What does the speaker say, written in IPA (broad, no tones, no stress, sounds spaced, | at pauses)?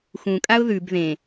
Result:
x ũ kʼ a ʊ̯ ð ʉ b ð ẽ